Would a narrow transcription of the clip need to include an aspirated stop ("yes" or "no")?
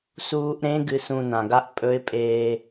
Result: no